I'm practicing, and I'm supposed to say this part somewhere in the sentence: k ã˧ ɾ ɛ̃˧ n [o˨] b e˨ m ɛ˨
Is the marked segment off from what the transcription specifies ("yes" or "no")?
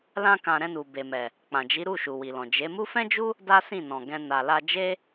yes